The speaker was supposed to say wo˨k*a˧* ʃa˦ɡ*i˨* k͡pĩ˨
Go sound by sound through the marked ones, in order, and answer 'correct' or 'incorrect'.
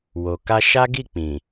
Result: correct, incorrect: i˦˨

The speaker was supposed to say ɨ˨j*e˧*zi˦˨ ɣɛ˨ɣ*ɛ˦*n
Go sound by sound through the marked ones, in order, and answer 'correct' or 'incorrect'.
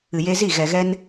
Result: correct, correct

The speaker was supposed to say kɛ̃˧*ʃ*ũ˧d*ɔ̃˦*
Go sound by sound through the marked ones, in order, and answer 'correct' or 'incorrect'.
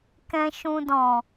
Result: correct, incorrect: ɔ̃˨

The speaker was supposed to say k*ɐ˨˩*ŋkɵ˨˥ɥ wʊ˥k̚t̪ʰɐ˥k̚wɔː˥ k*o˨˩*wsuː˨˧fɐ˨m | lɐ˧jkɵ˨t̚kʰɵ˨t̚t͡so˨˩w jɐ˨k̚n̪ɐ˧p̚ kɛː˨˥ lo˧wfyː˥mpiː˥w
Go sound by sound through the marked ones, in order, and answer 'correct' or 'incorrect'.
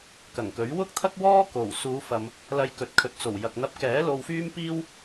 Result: correct, correct

